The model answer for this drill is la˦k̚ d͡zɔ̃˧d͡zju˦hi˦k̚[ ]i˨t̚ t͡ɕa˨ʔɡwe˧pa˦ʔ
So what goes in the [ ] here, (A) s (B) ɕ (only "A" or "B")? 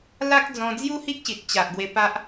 B